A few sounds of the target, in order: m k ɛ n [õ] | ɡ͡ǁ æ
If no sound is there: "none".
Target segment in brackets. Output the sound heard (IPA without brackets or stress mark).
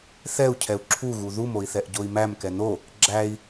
o